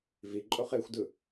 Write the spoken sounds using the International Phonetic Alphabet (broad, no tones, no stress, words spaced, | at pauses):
viǃʼoχ exʷdɯ